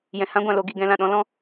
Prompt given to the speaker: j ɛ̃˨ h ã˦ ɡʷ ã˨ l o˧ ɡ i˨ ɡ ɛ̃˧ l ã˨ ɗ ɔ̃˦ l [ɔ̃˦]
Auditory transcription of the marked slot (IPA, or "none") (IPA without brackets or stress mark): ɔ̃˦